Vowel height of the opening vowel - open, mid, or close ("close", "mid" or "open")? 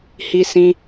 close